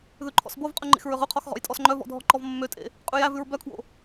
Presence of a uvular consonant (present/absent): present